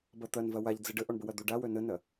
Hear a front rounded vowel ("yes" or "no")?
yes